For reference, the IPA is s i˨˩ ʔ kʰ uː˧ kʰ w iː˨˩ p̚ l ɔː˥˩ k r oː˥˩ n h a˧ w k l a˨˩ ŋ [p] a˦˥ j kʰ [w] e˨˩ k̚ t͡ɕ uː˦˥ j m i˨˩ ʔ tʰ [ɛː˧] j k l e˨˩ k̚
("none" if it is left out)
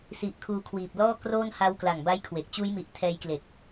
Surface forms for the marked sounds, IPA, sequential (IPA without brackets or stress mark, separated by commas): b, w, ɛː˧